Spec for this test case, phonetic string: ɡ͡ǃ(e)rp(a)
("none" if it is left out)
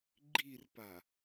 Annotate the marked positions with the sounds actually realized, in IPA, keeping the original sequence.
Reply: i, a

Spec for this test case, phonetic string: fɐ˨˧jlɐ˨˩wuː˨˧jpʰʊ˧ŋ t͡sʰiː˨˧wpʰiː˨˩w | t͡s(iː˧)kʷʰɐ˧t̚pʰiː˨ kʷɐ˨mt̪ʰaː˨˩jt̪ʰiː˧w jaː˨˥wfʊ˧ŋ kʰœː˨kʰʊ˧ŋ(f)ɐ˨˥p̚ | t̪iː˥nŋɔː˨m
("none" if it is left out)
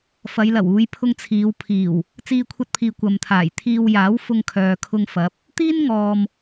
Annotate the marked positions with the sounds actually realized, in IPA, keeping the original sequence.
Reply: iː˧, f

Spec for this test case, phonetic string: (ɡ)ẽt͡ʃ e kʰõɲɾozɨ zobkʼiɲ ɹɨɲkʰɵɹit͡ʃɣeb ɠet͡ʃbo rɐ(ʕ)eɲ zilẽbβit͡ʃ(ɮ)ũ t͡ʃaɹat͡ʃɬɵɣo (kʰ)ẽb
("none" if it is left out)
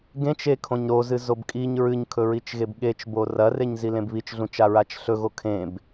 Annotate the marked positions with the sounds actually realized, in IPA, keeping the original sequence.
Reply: ɡ, r, ɮ, kʰ

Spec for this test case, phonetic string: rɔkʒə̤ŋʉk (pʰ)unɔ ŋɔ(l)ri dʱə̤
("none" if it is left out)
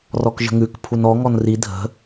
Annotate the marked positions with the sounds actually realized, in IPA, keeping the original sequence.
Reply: pʰ, n

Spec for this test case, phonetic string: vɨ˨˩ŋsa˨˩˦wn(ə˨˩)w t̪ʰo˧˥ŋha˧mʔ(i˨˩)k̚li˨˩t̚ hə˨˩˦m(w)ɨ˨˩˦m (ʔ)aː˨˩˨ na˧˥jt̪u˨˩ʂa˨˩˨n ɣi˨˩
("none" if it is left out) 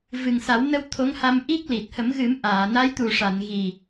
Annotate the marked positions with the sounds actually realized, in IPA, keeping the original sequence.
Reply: ə˧, i˦˥, ɣ, ʔ

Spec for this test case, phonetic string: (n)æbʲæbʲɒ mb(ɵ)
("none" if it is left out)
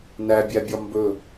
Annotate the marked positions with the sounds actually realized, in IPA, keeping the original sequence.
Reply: n, ɵ

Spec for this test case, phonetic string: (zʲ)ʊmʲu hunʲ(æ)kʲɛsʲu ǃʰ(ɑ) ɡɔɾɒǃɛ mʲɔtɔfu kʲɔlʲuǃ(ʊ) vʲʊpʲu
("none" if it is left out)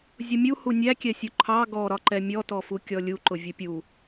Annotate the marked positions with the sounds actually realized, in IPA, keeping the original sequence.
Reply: zʲ, æ, ɑ, ʊ

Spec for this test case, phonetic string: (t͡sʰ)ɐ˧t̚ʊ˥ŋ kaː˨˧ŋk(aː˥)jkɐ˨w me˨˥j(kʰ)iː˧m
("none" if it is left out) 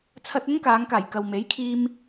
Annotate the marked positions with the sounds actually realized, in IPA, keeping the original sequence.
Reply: t͡sʰ, aː˨˩, kʰ

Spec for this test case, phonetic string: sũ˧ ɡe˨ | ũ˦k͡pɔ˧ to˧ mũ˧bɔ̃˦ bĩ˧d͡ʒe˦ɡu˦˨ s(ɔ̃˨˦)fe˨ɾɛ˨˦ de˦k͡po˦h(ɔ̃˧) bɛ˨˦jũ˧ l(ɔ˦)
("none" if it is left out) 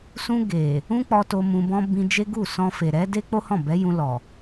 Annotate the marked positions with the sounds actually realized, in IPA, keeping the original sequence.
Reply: ɔ̃˧, ɔ̃˦˨, ɔ˨

